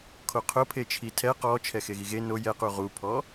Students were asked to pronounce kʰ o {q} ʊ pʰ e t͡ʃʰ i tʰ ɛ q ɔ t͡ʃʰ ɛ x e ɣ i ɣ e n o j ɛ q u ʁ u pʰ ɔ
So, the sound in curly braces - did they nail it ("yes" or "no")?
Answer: no